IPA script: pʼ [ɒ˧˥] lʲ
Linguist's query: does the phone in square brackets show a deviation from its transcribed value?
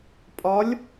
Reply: no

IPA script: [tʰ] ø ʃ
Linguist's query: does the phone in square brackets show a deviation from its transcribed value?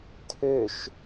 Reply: no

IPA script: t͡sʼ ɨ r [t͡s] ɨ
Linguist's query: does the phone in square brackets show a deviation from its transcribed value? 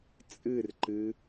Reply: yes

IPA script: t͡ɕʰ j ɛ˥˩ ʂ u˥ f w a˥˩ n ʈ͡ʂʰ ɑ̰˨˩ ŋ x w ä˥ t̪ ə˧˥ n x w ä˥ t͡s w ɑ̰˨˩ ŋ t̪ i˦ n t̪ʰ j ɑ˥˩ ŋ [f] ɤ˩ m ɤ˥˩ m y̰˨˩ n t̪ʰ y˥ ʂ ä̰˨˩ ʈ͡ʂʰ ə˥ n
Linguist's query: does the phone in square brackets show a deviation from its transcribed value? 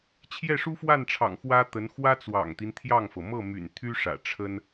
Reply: no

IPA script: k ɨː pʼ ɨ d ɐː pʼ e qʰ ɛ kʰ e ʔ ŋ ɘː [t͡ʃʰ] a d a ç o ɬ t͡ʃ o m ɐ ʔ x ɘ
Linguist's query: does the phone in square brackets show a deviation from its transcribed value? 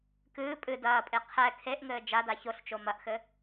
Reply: yes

